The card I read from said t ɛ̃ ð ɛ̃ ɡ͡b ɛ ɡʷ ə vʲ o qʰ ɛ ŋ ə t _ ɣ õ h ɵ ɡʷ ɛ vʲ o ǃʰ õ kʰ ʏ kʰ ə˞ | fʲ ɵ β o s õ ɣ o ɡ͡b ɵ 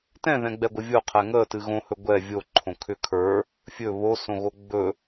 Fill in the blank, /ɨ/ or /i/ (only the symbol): ɨ